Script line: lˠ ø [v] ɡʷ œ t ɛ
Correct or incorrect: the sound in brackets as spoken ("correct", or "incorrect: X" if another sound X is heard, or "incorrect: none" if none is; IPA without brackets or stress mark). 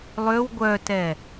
incorrect: w